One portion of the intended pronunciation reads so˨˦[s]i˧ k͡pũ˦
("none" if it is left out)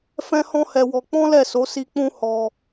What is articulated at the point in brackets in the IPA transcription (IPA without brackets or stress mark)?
s